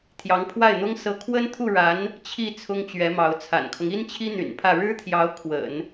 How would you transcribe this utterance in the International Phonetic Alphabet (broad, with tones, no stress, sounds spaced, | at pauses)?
t̪ʰ j ɑ˧˥ ŋ pʰ w a˥˩ ɪ̯ n̪ ʊ˥ ŋ s ɤ˧˥ kʰ w ə˥ n t̪ʰ u˥˩ ɻ a˧˥ n | t͡ɕʰ i˥˩ t͡sʰ ʊ˥ ŋ t͡ɕ ɥ ɛ˧˥ m ɑ˧˥ ʊ̯ t͡sʰ a̰˨˩ n kʰ ɤ˦ ŋ i˥ n t͡ɕʰ i˥ n̪ y̰˨˩ n pʰ ä˥˩ ɻ ɻ̩˥ t̪ʰ j ɑ˧˥ ʊ̯ kʰ w ə̰˨˩˦ n